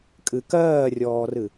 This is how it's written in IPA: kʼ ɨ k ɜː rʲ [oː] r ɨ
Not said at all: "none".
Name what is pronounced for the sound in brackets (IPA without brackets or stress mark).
ɔː